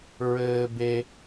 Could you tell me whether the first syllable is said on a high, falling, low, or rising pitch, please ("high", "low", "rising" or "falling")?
high